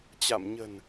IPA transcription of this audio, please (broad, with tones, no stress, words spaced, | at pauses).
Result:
t͡ɕa̰˧˨m ɲə̤˨˩n